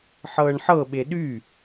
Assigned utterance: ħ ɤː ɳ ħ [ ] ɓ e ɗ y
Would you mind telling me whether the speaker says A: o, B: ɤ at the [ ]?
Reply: B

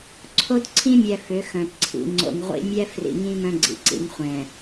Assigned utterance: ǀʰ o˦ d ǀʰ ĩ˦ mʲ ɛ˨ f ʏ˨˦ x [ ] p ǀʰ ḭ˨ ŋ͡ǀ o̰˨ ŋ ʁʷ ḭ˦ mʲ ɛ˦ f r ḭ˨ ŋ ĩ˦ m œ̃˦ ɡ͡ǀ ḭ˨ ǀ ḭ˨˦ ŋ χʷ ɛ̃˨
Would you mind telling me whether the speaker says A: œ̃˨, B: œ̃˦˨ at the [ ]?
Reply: A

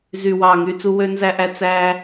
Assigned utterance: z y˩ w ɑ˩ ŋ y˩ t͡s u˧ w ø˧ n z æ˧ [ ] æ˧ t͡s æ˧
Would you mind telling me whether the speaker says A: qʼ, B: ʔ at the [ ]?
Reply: B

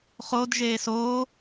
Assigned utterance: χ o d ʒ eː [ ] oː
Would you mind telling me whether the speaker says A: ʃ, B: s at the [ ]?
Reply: B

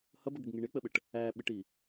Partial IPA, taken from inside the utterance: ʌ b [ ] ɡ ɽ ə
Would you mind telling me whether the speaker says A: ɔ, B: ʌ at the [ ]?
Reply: B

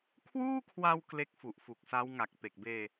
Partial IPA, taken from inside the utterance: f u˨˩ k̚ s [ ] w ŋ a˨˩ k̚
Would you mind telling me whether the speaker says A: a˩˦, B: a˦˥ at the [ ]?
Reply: B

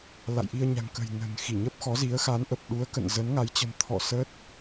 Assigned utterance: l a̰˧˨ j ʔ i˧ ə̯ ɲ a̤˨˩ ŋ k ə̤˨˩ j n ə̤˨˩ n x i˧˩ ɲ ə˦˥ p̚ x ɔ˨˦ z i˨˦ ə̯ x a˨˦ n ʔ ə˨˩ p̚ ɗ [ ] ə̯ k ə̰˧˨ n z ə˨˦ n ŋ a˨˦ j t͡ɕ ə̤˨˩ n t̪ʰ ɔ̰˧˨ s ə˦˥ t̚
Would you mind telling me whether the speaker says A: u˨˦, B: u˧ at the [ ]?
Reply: A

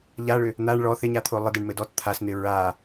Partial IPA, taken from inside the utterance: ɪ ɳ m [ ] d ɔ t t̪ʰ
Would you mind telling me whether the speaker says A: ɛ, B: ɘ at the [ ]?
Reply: B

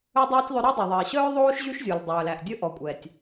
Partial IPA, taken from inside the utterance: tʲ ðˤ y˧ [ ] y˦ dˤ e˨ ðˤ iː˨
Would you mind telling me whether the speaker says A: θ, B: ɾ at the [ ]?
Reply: B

